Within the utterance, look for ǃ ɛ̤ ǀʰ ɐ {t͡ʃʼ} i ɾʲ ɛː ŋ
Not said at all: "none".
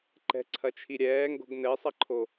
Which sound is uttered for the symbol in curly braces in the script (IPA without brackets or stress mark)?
t͡ʃʰ